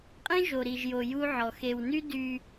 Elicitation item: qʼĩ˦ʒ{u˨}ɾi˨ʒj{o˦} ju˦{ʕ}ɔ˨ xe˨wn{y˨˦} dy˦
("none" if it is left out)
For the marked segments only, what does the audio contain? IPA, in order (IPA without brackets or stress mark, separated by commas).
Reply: o˨, o˨, ʕ, y˦